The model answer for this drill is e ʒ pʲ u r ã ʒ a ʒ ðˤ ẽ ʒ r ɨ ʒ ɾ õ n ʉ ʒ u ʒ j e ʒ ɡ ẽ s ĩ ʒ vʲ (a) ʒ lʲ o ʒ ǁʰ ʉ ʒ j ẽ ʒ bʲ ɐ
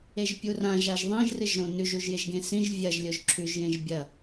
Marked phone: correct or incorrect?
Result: incorrect